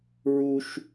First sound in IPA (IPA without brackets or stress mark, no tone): ɹ